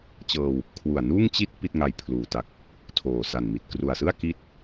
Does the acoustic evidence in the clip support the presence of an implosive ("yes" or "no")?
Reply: no